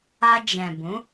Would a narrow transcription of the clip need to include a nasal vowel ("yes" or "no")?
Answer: yes